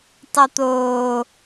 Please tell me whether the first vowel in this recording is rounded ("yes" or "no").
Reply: yes